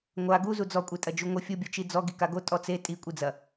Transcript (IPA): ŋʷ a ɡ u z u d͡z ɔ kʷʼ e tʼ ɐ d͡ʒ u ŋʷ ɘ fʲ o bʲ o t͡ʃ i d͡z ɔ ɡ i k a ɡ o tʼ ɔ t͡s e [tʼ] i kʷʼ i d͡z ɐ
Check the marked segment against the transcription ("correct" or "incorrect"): correct